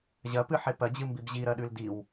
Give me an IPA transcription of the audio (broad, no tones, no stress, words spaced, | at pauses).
ʑɐpɨħe pɐd͡ʑɨmbib ʑiɾɐɗʉl diw